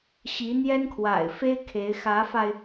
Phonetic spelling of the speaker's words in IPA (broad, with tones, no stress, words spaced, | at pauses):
ɕi˧˥n̪jɛ˥nkʰwa̰˨˩ɪ̯fe˥ɪ̯ kʰe˧˥ɪ̯ xä˧˥fa˧ɪ̯